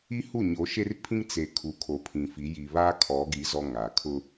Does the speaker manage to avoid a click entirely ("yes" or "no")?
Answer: yes